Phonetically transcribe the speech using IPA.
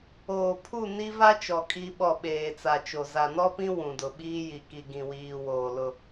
oː˨ pʰ u˦˨ n i˦ v a˦ t͡ʃ ɔ˨ kʼ i˦ ɓ ɔ˦˨ ɓ eː˨ t͡s a˨ t͡ʃ o˨ z a˨ n ɔ˦ p ĩ˦ w ũ˨ d ʊ˨ ɓ iː˦ j i˨ k i˨ ɡ ĩ˨ w iː˨ w oː˨ l ʊ˦

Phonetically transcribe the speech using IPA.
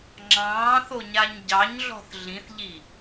ŋ͡ǁ ɑ̃ː θ o ɲ a ɲ ɟ ɑ ɲ ɮ ɔ̤ θ ɮ ĩ θ ʎ i

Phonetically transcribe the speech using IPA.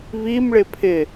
β i m ɭ ɪ pʰ ɪ

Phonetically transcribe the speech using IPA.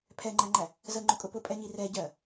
pʰ ɛ ŋ͡ǃ æ ŋ͡ǃ æ | z ə ŋ͡ǃ ʊ kʼ ʊ p ʊ pʼ ɛ ɲ i r ɛ ɟ ɜ

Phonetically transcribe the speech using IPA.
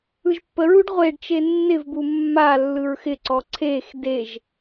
ɯ ʒ pː ə ɹ u ɖ ʁʷ e ɖ t͡ʃ e nː ɪ v b u mː a lː ɯ ɹ x ɪ ǀ ɔ ǀʰ e x d e ʒ

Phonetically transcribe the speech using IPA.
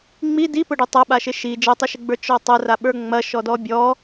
ŋ͡m i d i p ʊ ɖ ʊ tˤ ɐ ɓ a ʃ ɪ ʃ i d͡ʒ ɐ tˤ i ʃ ɪ ɡ͡b ə˞ t͡ʃ ɔ tˤ ɐ r a ɓ ə˞ ŋ͡m ɐ ʃ ɔ d ɔ bʲ ɔ

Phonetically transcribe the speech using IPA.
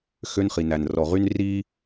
x ø˦ n χ i˨ n æ˨ n r ɔ˨ ʁ y˦ n r i˦

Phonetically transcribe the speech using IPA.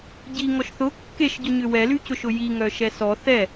ɟ i ŋ ɔ ʃ θ ʊ kː e ʃ ɟ ʊ ɲ ʏ w ɛ l y c ʊ ʃ ʊ j i ŋ œ ʃ ɛ s ɔ θ ɛ

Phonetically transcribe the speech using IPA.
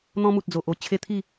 n̪ ɔ̃˧ m u˨ t̚ d͡z o˨ ʔ o˥˧ t͡ɕʰ e˧ t̪ʰ i˥˧

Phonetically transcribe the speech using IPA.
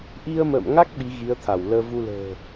ʔ i˧ ə̯ m ə̰ː˧˨ m ŋ a˦˥ k̚ ɓ i˨˦ ɣ i˨˦ ə̯ t̪ʰ a˧˩ w l əː˧ v u˧ l ə̤ː˨˩

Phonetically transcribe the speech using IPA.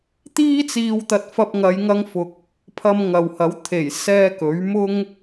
t̪ iː˥ t͡s iː˧ w t̪ ɐ˧ t̚ f ɐ˧ p̚ ŋ ɐ˨˧ j ŋ ɐ˧ ŋ f ʊ˨ k̚ | pʰ ɐ˧ m ŋ ɐ˨ w h ɐ˨˥ w t̪ʰ e˨˩ j s ɛː˧ k ɵ˨˥ ɥ m ʊ˥ ŋ

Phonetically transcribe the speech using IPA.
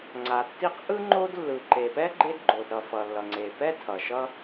ŋ͡ǀ a˩ tː i˥ q ʔ ɯ˥ ŋ͡ǃ o˥ d lː ɯ˩ ǃ e˩ p ɛ˥ ɡ͡ǃ e˥ d ɡ͡ǃ o˩ d ɾ ʌ˩ f ʌ˩ lː ʌ˩ ŋ͡ǀ e˩ p ɛ˥ tʰ ʌ˩ ʃ ʌ˥

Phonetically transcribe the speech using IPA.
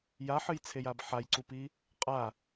j a ħ ɨ j t͡sʰ e j a b ħ a j ǀ u p i | qʼ a

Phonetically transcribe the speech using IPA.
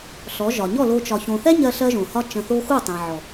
ɬ ɔ˨˦ ʒ ɒ˨ ɲ ɔ˦˨ l o˧ t͡ʃ ɒ˨ ç õ˨ θ ɛ˦ ɲ ɜ˧ ɬ ɜ˦ ʒ õ˨ h ɒ˦ t͡ʃ ə̃˧ θ o˦ x u˦˨ tˤ ɛ̃˨ ʕ ɔ˨

